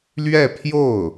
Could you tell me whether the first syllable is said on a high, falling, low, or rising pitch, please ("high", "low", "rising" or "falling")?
falling